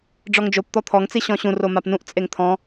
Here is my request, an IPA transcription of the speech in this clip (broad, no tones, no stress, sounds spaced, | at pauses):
ɖ͡ʐ ɔ ŋ d͡ʒ o p t̪ ɔ t̪ʰ ɔ ŋ t͡s i ɕ ɔ̃ ɕ ũ r o m a p n ũ ʔ t͡sʼ e ŋ t̪ʰ ɔ̃